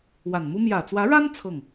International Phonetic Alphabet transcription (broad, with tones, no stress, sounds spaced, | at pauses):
w a˨˩ n m u˥ m j ä˨˩ t͡s w ä˧˥ ɻ a˥ n t͡sʰ ɤ˥˩ ŋ